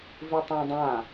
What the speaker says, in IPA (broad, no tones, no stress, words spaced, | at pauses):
vitˤãdˤã